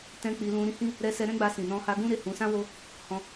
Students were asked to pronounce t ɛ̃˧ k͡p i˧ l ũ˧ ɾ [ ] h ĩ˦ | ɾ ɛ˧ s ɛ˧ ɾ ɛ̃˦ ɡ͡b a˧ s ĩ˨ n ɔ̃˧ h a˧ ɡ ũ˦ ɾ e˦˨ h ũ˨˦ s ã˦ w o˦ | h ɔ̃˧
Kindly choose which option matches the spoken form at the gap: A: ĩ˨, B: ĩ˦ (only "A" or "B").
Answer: B